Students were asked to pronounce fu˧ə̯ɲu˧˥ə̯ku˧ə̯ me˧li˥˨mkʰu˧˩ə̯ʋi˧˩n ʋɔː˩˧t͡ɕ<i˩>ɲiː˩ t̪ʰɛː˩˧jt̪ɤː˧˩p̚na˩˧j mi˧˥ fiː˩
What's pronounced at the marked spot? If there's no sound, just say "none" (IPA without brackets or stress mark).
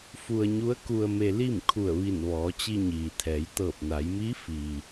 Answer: i˧